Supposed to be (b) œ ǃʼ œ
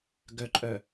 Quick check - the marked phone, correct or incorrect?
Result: incorrect